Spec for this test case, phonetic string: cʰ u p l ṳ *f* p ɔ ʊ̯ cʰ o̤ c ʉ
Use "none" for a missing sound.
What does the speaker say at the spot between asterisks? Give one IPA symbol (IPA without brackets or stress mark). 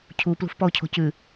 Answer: f